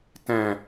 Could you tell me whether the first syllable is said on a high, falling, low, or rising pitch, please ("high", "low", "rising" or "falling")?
low